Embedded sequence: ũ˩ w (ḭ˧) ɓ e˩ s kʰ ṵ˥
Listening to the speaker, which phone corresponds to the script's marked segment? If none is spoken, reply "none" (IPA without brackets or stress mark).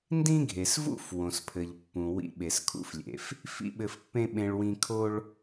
ḭ˧